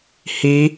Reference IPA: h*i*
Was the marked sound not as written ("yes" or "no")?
no